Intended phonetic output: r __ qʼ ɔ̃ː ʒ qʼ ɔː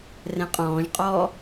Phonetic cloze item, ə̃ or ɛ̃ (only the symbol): ɛ̃